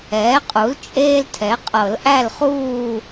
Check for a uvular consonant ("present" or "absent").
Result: present